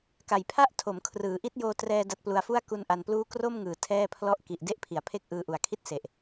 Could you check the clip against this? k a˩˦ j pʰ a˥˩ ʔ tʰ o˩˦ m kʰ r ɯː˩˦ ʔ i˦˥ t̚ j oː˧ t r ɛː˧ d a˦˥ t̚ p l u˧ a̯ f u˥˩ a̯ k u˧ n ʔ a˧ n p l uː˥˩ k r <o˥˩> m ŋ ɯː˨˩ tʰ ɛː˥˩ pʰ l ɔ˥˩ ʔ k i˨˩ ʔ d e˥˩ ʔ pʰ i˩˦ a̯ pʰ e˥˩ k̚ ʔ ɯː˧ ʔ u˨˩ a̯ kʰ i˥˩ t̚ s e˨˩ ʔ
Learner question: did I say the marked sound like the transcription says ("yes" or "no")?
yes